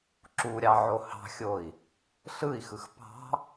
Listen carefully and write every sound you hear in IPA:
ǁ u ɾʲ ɑ ʕ o h ɑ̤ xʲ o i̯ | ɬ ɯ i̯ x ɯ x p ɑ̤

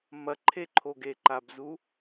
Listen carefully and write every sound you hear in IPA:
m ɐ ǃʰ e ǃʰ o ɡ e ǃ a b z u

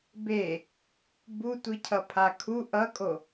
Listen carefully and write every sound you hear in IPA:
b e | b u tʷ i cʰ ʌ pʰ a kʰ u ʔ ʌ kʼ o

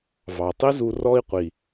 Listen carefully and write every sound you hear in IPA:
v ɑ˨ tˤ i˦ z u˧ r ɔ˦ i̯ qʷ i˨

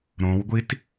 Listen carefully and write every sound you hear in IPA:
ɾ õ w ɡʷ i t

